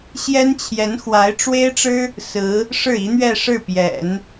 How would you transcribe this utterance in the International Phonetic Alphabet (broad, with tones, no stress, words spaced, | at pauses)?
ɕjɛ˥nt͡ɕʰjɛ˧˥nxwa˧˥ɪ̯ ʈ͡ʂwe˥ɪ̯ʈ͡ʂɻ̩˥ | sɹ̩˧˥ | ʂɻ̩˥˩i˧˥n̪ɥɛ˥˧ ʂɻ̩˥˩pjɛ̰˨˩˦n